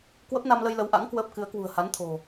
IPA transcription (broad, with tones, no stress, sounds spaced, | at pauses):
k w ə˦˥ p̚ n a˧ m l ə˧ j l ə˨˦ w ʔ a̰˧˥ ŋ k w əː˦˥ p̚ k ɨ˨˦ ə̯ k w ṳ˨˩ ə̯ h a˨˦ n t̪ʰ o̤˨˩